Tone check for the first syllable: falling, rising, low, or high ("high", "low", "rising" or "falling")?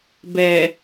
low